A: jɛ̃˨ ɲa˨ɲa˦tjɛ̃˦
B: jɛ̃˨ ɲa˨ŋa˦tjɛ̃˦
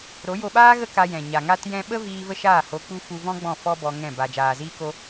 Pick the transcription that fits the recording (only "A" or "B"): B